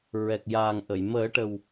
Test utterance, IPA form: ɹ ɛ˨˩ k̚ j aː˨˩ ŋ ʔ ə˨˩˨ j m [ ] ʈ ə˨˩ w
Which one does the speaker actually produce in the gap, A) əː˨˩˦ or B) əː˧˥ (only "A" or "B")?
A